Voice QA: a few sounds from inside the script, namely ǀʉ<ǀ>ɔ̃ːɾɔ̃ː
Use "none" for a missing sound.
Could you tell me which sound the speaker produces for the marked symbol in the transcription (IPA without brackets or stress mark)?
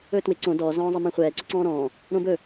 ǀ